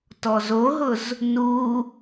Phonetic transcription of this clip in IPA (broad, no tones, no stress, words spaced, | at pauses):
tɔzoɦʊz | nu